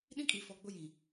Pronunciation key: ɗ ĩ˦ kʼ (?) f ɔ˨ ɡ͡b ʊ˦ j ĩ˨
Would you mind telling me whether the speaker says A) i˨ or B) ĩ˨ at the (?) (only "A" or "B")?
A